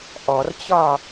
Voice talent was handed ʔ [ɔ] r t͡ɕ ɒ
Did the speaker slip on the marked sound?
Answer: no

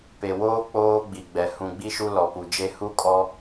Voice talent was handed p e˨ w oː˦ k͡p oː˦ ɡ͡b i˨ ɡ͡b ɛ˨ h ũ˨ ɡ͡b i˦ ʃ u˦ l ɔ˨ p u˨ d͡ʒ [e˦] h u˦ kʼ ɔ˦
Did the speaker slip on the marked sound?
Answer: no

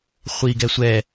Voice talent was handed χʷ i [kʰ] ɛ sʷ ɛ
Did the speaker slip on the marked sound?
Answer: yes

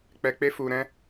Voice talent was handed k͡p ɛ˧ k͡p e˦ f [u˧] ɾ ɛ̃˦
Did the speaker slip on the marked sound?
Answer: no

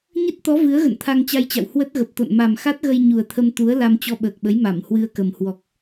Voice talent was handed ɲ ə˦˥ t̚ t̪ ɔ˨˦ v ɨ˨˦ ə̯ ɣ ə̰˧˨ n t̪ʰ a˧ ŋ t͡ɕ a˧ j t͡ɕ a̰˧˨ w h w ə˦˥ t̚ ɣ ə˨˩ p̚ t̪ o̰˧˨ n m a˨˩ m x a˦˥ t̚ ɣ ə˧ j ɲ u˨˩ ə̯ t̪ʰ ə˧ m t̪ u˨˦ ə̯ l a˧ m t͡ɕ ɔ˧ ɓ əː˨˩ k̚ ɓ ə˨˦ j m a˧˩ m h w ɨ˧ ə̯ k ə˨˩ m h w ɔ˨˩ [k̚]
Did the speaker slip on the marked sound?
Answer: no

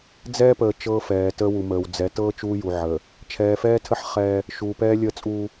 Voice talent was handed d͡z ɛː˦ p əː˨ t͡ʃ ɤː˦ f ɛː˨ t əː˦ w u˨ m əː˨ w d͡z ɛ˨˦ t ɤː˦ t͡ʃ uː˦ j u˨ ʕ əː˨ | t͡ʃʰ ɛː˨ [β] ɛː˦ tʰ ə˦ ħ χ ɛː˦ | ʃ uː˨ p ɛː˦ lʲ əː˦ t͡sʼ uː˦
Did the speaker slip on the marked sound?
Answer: yes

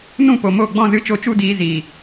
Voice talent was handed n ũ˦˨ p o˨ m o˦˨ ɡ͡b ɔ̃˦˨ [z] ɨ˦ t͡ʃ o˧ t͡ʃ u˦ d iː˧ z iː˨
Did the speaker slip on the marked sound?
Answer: no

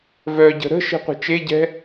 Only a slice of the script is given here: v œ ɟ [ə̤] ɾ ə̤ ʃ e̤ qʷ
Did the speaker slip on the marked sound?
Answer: no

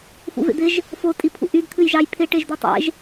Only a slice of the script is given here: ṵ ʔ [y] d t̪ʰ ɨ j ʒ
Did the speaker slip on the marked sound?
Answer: no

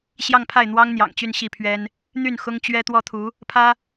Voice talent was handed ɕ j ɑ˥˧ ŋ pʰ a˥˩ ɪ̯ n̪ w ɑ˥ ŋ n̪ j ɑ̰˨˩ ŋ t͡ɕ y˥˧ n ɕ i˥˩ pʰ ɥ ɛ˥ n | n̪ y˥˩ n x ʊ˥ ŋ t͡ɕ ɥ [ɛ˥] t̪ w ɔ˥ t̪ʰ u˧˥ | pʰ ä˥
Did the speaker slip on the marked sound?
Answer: no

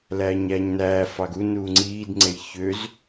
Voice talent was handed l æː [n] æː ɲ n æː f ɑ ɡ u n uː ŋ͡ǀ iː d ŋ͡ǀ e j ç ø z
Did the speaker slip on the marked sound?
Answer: yes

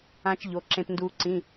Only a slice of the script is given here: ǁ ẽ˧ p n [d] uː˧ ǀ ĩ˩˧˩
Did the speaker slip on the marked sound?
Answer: no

